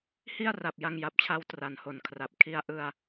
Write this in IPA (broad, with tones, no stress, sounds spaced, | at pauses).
h i˥˩ a̯ r a˨˩ p̚ j a˧ ŋ j a˨˩ p̚ t͡ɕʰ a˦˥ w t r a˩˦ n h o˨˩ n kʰ r a˨˩ p̚ kʰ i˧ a̯ ʔ ɯ˧ a̯